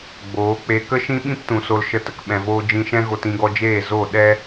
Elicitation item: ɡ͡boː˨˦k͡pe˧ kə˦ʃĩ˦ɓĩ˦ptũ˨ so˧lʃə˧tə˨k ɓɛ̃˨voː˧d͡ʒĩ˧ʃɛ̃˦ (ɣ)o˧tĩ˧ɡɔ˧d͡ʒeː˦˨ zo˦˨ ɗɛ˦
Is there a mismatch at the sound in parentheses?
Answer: no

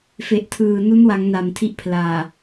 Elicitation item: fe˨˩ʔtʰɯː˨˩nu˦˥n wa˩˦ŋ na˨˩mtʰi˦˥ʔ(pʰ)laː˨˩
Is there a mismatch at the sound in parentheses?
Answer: no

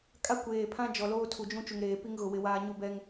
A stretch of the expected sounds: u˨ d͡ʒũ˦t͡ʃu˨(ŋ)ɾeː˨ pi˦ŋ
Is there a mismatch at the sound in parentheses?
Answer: no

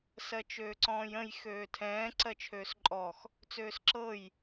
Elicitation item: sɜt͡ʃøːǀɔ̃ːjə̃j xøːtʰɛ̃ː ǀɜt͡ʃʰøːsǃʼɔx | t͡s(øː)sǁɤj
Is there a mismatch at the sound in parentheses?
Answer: no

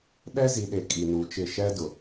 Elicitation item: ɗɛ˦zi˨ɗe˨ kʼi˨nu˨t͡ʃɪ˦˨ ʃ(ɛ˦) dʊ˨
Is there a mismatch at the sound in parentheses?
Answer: no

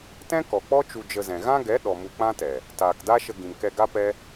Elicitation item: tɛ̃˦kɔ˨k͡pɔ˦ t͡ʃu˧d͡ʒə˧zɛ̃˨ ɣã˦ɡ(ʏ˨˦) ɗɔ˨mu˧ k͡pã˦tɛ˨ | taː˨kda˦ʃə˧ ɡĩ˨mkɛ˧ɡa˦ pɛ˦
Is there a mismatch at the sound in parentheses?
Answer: yes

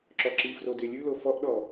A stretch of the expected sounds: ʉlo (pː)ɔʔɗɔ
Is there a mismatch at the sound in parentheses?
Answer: yes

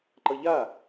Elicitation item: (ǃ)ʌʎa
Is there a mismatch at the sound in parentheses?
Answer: no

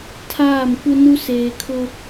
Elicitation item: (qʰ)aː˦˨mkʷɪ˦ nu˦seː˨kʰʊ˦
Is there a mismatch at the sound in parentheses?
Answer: yes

